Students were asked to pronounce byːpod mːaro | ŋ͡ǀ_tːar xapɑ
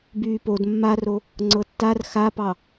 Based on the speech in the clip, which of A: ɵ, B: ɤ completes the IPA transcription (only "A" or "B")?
B